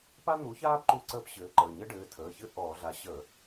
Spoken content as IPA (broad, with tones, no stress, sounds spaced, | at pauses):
p a˥ n̪ u˨˥ ç aː˥ p ǃ u˥ ǀ əː˥ p ɕ ɘː˨˥ ǃ əː˩˧˩ ɲ ɘ˥ ɖ ɘː˩˧˩ tʰ əː˩˧˩ ç ɘ˥ ʔ ɔː˧˩˧ ɮ a˨˥ ɕ ə˧˩˧